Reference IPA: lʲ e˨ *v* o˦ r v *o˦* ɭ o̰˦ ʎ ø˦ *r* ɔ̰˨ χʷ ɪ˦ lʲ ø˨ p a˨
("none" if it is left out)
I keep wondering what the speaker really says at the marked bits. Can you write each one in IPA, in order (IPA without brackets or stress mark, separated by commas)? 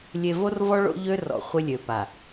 v, ɔ˦, r